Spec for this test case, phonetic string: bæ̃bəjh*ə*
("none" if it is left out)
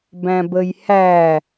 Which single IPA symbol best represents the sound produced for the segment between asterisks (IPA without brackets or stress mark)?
æ